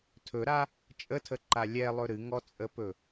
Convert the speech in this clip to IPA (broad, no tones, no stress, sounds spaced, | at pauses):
tʰ ɵ ɾ a | t͡ʃʼ ə tʰ ə ǃ a lʲ ɛ lˠ ɵ ɾ ɨ ŋ ɔ t͡sʼ ə p ɵ